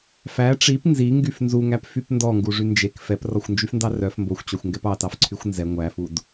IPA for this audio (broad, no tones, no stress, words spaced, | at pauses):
fæ ʈ͡ʂip nziŋɡyf nzuŋæpfyp ndɔŋɡuʐy nd͡ʒek fɛprɔxʷnd͡ʒyfndɑ rœf mboxʷt͡ɕɔxʷŋɡɛp ɑtɑfǀʰyxʷ nzɛ ŋʷæfud